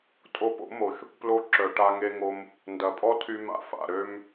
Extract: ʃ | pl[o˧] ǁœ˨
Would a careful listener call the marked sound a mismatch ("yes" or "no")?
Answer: no